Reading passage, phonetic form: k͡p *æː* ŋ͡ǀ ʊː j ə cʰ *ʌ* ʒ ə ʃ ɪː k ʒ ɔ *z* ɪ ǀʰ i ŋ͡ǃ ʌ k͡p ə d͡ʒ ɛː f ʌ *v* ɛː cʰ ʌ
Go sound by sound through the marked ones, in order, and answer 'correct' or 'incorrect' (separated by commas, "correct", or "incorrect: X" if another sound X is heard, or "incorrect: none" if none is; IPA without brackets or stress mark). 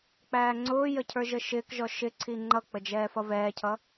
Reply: correct, incorrect: ə˞, incorrect: ʃ, correct